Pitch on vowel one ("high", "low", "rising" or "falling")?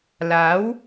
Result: rising